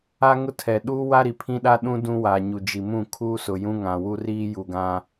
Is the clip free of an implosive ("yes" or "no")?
no